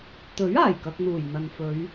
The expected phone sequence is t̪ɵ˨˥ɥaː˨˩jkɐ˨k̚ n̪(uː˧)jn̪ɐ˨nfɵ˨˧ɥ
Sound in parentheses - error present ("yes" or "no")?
yes